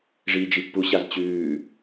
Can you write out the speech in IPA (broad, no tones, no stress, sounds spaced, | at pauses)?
ʐ iː d͡ʒ i pː u ɕ a z t͡ɕ ʉː